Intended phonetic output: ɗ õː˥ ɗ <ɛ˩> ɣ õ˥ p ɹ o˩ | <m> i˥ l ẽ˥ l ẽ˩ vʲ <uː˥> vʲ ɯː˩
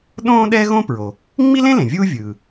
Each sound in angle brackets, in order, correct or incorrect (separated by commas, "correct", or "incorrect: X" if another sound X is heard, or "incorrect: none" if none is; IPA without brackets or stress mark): incorrect: ɛ˥, incorrect: ŋ͡m, correct